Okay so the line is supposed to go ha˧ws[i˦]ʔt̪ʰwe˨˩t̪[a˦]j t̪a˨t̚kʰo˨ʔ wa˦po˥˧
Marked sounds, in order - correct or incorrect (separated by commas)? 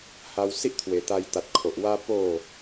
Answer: correct, incorrect